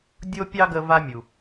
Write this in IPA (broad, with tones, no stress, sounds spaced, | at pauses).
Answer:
dʲ o˥ pʲ ɑ˥ ɡ ə˦ v a˦ mʲ u˩